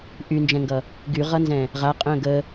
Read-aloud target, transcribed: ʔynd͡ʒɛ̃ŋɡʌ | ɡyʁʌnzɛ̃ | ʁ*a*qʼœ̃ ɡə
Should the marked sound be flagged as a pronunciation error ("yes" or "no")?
no